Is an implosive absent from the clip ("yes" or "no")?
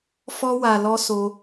yes